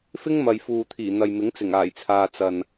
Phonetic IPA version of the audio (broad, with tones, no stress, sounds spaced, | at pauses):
f ɪ˥ ŋ m ɐ˨ j f uː˨ t̪ʰ iː˨˩ n̪ ɐ˨ j m ɪ˨˥ ŋ t͡s ɪ˨˩ ŋ aː˨˩ j t͡sʰ aː˨ t͡s ɐ˨ n